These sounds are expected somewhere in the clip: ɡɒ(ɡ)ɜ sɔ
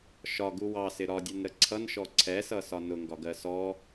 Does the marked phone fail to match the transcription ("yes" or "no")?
no